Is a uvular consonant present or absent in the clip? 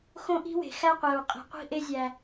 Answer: present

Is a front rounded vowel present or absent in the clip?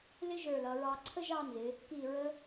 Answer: absent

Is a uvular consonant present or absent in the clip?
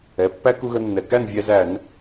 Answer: absent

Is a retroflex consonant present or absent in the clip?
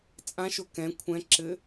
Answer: absent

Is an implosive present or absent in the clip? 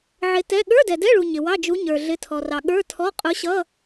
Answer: present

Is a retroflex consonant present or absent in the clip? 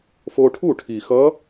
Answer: present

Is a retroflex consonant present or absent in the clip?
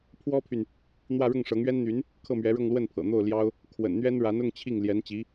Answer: present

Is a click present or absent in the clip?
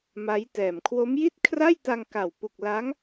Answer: absent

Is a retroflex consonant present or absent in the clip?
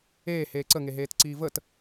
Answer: absent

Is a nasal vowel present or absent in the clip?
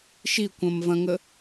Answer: present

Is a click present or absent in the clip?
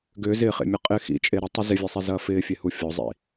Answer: absent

